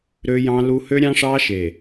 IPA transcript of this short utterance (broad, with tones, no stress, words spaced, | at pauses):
ɾø˦jɑ̃˦lu˦ hø˦ɾʲɑ̃˦ʂɑ˦ʃe˨